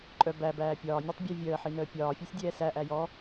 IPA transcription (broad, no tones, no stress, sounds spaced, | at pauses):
ǃʼ œ b æ b æː pʲ ɒː nʲ ɔ tˤ bʲ æ vʲ əː ħ i n əː pʲ ɒː fʲ ɛ sʲ dʲ ɛː s æ ʔ æ j ɔ